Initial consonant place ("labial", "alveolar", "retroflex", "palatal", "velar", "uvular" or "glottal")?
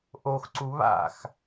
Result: glottal